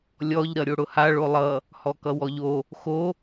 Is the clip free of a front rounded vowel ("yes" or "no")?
yes